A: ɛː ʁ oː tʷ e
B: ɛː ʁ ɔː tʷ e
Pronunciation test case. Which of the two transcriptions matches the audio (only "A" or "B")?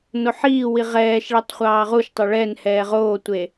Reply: A